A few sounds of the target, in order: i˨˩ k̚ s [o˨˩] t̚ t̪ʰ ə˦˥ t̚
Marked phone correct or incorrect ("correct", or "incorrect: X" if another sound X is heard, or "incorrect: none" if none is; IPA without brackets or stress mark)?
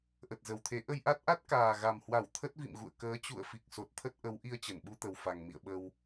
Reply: correct